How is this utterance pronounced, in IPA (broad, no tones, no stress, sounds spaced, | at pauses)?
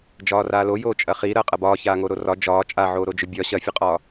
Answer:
d͡ʒ ɒː r aː l o j oː t͡ʃʼ ɐ χ i ɾ ɐː qʼ ɐ b ɒː ç aː ŋ o ɾ o r ɒ d͡ʒ ɒː t͡ʃʼ a ʕ oː ɾ o d͡ʒ ɵ bʲ ɒ ɕ ɐ fʲ ɐ qʼ ɒː